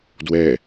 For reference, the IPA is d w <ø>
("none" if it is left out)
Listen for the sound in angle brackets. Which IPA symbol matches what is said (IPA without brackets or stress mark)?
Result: ɛ